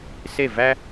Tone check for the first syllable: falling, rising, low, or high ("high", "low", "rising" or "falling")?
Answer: falling